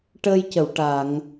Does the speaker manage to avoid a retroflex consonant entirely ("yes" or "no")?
no